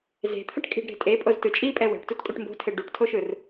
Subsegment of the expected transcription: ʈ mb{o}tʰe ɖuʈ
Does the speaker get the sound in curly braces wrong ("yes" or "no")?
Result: yes